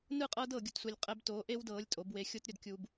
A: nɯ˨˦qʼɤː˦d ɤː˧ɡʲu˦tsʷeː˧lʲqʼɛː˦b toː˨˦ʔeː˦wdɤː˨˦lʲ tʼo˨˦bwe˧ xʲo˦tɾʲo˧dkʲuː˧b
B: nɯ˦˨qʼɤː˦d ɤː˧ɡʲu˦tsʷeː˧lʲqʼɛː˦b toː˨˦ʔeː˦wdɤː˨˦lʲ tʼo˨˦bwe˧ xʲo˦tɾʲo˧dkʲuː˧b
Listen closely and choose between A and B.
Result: B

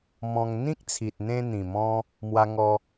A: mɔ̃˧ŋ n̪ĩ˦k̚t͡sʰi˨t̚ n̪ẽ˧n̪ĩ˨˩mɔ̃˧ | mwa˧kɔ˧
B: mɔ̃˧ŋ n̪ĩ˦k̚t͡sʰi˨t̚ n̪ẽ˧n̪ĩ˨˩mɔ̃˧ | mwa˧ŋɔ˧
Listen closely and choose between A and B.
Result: B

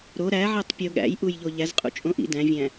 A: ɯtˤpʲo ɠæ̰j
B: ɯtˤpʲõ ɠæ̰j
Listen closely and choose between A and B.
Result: A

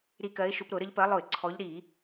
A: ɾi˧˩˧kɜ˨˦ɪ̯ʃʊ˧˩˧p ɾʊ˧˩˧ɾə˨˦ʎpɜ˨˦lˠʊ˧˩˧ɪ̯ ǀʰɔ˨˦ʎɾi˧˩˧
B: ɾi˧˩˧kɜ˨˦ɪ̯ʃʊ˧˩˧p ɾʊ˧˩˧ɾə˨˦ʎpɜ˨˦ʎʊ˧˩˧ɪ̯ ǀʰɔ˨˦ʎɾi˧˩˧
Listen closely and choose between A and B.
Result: A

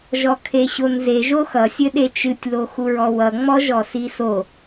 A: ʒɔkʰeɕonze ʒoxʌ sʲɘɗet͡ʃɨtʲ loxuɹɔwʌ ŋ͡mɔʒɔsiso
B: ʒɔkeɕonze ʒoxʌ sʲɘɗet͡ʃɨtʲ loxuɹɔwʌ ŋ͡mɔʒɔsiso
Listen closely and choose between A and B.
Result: A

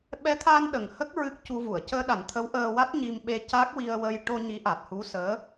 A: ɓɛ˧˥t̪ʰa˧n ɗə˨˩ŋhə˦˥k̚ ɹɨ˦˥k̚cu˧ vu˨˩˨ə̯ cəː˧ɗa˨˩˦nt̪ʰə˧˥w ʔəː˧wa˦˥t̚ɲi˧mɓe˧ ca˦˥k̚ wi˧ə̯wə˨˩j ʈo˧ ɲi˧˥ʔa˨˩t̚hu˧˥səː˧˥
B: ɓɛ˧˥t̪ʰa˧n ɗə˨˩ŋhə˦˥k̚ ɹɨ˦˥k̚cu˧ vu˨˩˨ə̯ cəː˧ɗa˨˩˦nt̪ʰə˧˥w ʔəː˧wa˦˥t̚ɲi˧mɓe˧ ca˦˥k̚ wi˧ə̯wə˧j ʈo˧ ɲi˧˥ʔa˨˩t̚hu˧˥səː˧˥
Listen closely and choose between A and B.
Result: B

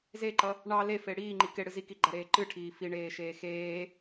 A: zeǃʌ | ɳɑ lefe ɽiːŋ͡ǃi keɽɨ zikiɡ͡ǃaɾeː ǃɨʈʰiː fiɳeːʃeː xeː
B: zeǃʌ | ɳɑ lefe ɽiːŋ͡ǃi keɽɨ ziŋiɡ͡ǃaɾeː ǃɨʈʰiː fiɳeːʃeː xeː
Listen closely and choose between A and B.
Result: A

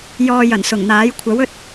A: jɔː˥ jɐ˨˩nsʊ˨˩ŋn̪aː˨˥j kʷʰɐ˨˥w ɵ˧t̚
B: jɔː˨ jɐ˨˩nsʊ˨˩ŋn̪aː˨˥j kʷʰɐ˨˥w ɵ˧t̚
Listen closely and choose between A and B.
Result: B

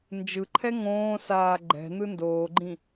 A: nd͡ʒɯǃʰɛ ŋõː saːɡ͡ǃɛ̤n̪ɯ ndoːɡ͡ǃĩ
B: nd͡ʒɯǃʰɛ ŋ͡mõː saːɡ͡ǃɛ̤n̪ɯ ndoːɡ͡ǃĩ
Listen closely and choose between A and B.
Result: A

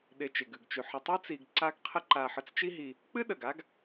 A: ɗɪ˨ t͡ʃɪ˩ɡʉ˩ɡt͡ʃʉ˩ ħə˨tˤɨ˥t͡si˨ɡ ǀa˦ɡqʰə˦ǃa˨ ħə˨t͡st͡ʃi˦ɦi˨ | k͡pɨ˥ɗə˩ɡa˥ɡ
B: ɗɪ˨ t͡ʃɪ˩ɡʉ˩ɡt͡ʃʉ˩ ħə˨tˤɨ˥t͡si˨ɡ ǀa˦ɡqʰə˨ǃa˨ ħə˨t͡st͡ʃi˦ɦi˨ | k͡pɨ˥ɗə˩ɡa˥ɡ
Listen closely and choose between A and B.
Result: A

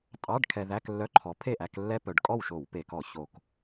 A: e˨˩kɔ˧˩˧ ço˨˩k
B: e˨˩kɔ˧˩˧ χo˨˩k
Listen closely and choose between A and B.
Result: A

